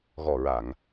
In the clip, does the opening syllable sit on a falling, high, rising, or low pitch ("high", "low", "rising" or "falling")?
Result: low